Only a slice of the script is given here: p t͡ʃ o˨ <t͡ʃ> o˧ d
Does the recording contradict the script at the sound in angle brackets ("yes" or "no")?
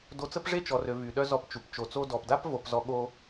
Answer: yes